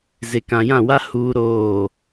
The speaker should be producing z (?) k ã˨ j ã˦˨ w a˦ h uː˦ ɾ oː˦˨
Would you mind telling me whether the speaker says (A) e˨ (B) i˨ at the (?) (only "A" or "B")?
A